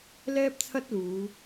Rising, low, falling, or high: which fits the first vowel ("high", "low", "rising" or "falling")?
high